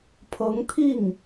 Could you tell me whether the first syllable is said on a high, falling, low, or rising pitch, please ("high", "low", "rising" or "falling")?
rising